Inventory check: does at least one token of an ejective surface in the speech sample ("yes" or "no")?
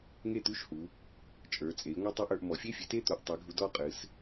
yes